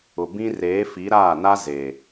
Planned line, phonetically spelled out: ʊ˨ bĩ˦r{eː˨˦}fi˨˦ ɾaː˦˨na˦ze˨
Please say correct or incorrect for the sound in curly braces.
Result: correct